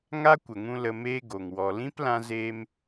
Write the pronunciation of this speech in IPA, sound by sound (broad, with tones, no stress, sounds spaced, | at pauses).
ŋ a˦ kʷ ə˨ ŋ ũ˧ l ə˧ m eː˦ ɡ o˨ ŋ w ɔ˨ l ĩ˦ p l ã˧ z eː˧ m